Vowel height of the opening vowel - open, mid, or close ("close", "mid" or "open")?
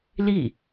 close